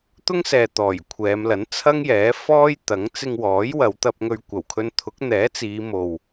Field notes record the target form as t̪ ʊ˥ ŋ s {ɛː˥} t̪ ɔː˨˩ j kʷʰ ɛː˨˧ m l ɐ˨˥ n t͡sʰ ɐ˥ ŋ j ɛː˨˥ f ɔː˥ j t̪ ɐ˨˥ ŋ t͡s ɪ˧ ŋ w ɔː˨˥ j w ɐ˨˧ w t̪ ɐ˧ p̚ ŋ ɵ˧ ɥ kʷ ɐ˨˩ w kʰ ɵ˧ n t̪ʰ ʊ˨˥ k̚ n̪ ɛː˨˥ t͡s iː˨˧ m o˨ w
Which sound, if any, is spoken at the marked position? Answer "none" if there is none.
ɛː˨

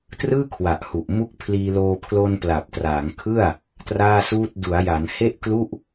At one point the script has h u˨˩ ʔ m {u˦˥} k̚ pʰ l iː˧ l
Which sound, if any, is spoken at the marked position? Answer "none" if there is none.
u˦˥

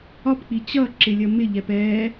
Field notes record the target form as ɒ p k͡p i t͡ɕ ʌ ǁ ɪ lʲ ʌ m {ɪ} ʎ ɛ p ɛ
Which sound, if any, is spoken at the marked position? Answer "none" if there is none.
ɪ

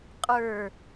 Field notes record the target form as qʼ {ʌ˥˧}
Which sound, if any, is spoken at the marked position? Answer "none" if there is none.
ə˞˥˧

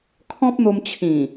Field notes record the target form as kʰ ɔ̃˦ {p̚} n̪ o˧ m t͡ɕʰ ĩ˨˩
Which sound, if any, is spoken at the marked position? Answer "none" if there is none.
p̚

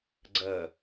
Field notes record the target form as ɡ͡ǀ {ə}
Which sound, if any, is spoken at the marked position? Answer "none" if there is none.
ɐ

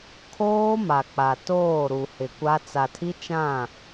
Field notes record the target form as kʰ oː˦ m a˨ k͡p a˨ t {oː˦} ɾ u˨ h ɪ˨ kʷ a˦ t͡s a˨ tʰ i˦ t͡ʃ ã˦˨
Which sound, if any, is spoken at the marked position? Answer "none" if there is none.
oː˦˨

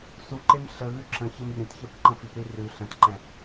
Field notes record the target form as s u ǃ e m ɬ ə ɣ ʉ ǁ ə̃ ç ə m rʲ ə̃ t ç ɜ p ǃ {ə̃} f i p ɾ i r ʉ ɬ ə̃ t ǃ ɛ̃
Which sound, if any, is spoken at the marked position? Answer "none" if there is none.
ə̃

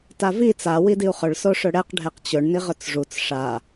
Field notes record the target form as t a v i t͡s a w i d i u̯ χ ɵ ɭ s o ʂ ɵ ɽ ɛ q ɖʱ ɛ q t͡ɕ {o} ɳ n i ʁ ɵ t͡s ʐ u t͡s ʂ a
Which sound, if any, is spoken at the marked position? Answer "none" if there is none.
ɵ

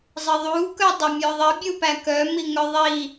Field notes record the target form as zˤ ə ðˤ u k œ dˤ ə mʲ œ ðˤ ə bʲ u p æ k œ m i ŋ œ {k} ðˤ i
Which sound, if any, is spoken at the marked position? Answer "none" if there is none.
none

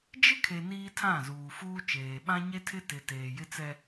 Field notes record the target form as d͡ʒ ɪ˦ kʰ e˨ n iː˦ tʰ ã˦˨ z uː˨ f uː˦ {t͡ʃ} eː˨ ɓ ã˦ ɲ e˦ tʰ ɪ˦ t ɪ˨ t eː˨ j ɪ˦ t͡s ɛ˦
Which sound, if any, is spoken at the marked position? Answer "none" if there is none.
t͡ʃ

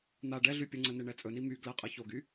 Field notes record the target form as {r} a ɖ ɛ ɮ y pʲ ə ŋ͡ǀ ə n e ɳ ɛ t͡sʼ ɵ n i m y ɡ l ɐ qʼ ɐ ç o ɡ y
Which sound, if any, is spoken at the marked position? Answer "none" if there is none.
n̪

